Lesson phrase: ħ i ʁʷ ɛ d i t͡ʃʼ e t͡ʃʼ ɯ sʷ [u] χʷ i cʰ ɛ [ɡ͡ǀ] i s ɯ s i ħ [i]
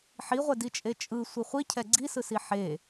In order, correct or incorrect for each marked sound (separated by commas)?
incorrect, correct, incorrect